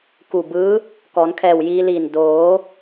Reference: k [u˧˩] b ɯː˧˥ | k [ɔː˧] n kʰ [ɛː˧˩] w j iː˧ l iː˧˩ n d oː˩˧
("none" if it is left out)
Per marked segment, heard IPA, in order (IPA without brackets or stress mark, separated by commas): u˧˩, ɔː˩˧, ɛː˧˩